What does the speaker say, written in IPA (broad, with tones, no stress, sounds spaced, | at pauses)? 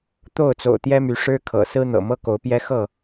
t̪ o˥˨ ʊ̯ t͡s o̰˨˩ ʊ̯ t̪ j ɛ˦ m y˨˦ ʂ ɻ̩˦ kʰ ɤ̰˨˩ s ɹ̩˦ n̪ ɤ̰˨˩ m ɤ˦ k o˨˦ ʊ̯ p j ɛ˦ x ɤ˥˨